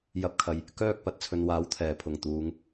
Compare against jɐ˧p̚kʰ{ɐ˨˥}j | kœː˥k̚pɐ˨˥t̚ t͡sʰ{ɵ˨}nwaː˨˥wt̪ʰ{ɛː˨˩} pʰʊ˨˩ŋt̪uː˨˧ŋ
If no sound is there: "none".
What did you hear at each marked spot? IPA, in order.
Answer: ɐ˨, ɵ˨, ɛː˨˩

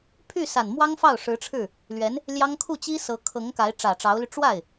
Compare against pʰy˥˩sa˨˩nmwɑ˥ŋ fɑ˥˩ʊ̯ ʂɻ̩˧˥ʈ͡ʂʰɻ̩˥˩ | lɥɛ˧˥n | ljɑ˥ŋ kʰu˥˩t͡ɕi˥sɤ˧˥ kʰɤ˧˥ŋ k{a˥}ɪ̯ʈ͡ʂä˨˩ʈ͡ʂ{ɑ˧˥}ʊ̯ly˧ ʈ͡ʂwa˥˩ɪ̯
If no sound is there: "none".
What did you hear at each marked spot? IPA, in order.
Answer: a˧˥, ɑ˧˥

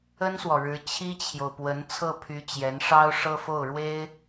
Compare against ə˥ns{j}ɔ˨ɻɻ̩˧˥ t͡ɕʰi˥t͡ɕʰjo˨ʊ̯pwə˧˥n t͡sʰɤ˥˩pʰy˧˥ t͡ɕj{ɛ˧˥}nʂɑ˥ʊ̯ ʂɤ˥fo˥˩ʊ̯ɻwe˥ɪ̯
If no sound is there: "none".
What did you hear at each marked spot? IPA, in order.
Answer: w, ɛ˧˥

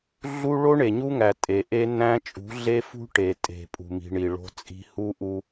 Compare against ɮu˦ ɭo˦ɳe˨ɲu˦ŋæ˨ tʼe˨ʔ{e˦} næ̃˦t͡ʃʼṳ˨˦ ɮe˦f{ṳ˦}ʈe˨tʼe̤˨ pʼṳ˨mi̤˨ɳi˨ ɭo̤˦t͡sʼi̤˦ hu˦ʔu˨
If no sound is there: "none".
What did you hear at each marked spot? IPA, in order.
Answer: e˦, ṳ˦

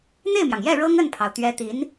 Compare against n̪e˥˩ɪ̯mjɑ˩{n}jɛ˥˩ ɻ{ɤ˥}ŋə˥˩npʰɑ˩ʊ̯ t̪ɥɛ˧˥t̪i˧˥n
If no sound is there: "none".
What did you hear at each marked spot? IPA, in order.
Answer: ŋ, ɤ˥

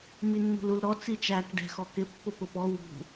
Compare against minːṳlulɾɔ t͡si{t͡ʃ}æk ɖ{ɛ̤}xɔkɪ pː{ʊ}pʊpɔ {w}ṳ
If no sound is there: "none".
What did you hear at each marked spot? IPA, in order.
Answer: t͡ʃ, ɛ̤, ʊ, w

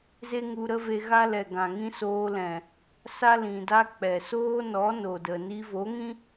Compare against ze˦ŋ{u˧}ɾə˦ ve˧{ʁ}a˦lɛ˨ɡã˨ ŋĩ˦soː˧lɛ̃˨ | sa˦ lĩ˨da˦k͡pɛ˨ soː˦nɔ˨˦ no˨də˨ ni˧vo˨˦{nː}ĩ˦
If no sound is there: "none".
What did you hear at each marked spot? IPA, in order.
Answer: u˧, ɣ, ŋ

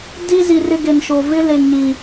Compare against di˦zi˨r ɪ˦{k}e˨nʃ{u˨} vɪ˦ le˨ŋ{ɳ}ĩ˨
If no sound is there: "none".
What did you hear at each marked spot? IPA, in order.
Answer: ɡ, o˨, ɲ

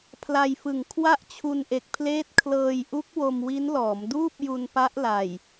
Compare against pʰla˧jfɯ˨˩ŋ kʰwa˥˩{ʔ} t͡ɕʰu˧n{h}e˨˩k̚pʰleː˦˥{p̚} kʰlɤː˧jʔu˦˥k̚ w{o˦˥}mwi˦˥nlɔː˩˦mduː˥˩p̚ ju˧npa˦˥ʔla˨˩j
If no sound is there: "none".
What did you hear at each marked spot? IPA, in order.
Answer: ʔ, ʔ, t̚, o˧

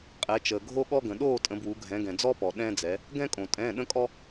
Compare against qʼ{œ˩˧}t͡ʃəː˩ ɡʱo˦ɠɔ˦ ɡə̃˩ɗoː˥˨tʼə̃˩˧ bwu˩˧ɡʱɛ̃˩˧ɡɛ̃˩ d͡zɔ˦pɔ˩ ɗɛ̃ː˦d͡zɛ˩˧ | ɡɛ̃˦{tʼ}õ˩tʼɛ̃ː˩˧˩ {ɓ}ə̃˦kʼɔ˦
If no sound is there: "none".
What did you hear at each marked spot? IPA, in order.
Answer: ɛ˩˧, kʼ, ɗ

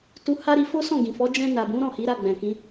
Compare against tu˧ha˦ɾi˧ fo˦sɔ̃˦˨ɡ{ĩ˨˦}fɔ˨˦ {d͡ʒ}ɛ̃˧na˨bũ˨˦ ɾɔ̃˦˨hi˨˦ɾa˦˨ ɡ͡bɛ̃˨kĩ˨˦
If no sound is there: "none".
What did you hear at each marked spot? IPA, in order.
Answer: ĩ˨, d͡ʒ

